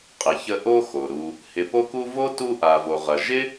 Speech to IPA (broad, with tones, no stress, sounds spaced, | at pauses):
qʼ ɪ˨ ç ə˦ ʔ o˦ x o˩ ɾ u˨ | h ɪ˨ p o˦ k u˦ v o˥ t u˦ ʔ a˩ v o˩ ʁ ɐ˩ ʒ ɪ˥